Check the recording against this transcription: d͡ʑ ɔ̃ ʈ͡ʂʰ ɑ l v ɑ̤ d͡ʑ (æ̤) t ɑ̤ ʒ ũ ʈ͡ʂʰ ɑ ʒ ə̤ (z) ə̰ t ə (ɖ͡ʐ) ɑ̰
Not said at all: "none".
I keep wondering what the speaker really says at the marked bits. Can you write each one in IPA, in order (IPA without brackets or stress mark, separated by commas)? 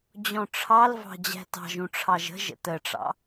æ̤, ʒ, ʈ͡ʂ